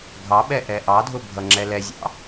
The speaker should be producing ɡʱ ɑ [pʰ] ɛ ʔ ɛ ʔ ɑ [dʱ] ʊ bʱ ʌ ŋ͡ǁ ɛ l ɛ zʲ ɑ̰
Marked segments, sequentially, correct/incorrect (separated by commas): incorrect, correct